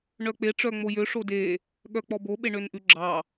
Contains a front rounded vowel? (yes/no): yes